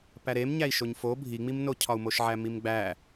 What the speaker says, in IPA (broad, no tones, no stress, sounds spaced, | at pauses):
p æ ɾ e m ɲ æ i̯ ʃ o ɲ f o bʱ i ŋ͡m i m n o cʰ ɒ u̯ m o ʃ ʕ æ m i m ɡ͡b æ